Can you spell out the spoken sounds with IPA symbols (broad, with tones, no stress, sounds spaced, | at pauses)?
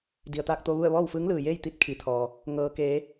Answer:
d i˩ ə̯ t̪ aː˧ k̚ t̪ o˧ ʋ u˥˨ ə̯ ʋ ɔː˥˨ w f ɯː˧˥ ŋ l ɯː˩ j eː˥˨ j t̪ i˥˨ t̚ kʰ i˩˧ t̪ʰ ɔː˩ | ŋ ɤː˩ k eː˩˧